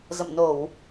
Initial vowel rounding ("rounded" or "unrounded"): unrounded